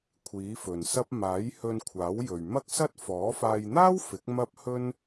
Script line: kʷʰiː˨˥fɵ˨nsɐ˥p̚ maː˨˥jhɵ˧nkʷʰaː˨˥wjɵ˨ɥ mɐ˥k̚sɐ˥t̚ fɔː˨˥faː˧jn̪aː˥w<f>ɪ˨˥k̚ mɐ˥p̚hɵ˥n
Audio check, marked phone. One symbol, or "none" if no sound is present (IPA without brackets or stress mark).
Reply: f